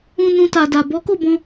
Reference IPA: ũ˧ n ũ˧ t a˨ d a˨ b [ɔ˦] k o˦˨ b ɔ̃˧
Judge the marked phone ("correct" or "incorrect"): incorrect